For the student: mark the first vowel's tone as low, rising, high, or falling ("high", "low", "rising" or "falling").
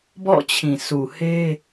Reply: falling